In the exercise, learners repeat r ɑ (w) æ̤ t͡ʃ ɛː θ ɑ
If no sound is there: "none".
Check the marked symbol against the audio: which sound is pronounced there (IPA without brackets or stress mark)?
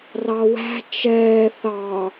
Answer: w